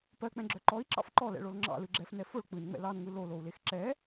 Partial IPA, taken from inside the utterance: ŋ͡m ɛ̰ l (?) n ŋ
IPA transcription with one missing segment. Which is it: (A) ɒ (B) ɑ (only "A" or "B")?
B